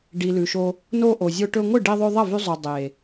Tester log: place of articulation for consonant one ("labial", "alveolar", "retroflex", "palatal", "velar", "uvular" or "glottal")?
retroflex